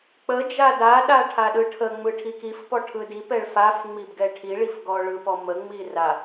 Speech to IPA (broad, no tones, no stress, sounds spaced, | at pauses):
k͡p ə d͡ʒ a d a ɗ a ʈʰ a ɗ ɯ ʈʰ ə ŋ͡m ɯ ʈʰ i k i f p ɔ ʈʰ ɯ d i p ɛ ɭ f a f ŋ͡m i b ɡ ɛ ʈʰ i ɭ i f ɡ ɔ ɭ ɯ p ɔ m ə ŋ͡m i r a